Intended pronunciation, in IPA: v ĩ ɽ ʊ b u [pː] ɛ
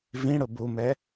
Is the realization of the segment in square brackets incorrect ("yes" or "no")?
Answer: yes